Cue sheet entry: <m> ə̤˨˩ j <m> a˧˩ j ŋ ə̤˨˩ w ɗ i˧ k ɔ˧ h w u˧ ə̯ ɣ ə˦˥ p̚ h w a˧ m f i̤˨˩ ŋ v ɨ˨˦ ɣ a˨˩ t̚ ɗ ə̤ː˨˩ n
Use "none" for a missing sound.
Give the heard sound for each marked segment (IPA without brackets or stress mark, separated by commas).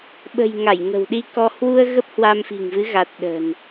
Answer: ɓ, ŋ